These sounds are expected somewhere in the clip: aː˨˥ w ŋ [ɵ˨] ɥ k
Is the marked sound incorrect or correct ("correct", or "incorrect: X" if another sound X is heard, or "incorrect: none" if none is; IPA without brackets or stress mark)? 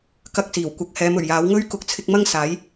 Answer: incorrect: ɵ˥